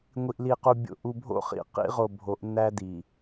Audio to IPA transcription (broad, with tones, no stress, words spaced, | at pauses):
ŋʷi˨ʔli˨qu˨ bʲo̰˨ʔu˨bʱo̰˦χḭ˨ qḭ˦ʁo˨ bʱo˨˦ʔnːæ˦di˨